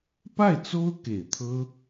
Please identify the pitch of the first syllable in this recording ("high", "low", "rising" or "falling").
falling